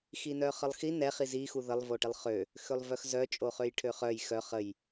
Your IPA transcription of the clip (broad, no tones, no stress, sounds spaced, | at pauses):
x i n œ χ ə lˠ x i n ɛ χ i z i x u ð ə lˠ v o ʈ i lˠ χ ø | x ø lˠ v œ x z œ t͡ʃʼ o χ ø j ʈʰ ø χ œ j x œ χ ə j